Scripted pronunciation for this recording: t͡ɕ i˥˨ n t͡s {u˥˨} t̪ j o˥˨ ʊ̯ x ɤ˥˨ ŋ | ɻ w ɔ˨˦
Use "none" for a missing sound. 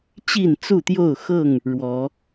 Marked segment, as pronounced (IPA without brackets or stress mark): u˥˨